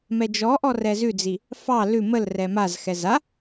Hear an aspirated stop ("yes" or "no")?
no